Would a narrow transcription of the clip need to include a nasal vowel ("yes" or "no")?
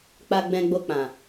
yes